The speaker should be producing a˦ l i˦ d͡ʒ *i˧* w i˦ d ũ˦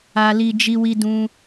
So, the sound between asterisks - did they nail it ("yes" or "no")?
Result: no